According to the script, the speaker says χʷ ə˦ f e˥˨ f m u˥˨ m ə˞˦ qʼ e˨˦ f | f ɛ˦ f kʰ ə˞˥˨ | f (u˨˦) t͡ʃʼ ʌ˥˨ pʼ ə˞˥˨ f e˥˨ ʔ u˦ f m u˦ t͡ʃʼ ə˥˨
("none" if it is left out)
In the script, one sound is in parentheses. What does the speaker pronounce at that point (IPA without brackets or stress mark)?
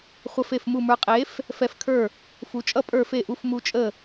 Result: u˨˦